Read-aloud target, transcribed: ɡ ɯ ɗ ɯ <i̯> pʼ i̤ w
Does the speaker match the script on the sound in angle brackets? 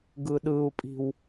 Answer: no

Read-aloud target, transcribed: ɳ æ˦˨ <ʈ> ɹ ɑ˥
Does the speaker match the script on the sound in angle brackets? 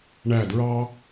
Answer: no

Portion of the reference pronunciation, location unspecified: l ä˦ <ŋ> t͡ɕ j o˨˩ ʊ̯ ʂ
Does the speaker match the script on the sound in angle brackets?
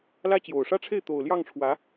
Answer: no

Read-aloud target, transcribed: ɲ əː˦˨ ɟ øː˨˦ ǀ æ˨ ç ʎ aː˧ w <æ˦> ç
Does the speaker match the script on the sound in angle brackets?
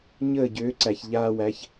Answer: no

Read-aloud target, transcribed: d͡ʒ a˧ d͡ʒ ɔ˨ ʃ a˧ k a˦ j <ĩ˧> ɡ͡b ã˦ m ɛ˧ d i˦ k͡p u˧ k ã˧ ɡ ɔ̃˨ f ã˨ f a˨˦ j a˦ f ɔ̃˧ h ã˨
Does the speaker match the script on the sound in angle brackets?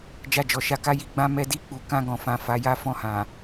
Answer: no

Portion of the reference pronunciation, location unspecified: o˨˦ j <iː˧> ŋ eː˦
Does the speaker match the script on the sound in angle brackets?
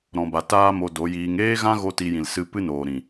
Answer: yes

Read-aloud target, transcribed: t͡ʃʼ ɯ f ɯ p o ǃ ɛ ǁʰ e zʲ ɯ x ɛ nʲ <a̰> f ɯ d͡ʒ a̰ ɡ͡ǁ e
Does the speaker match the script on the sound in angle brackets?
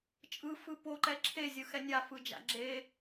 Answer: no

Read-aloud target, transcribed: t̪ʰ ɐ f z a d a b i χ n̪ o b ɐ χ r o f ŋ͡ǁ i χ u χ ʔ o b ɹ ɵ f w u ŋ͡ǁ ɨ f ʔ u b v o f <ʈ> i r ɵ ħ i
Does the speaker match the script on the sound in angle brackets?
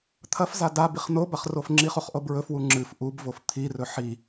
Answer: no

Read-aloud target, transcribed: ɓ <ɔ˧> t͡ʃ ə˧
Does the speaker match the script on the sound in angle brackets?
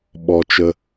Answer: yes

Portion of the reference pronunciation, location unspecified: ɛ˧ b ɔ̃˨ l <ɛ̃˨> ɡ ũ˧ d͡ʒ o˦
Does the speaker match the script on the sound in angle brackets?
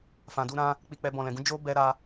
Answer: yes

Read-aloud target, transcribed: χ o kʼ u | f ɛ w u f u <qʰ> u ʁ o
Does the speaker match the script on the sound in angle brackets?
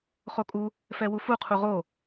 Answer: yes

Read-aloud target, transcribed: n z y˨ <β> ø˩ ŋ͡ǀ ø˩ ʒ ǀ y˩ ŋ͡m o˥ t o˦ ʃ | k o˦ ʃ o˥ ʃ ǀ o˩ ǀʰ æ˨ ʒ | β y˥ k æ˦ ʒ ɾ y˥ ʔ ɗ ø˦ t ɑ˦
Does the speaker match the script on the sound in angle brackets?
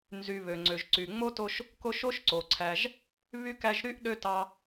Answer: yes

